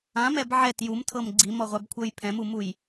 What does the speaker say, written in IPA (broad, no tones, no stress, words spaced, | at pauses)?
ãmɛb ʕɛt jumtʰɤm ɡ͡ǀimɔʁʷabkʷʰɤj pʰɛ̃mumuj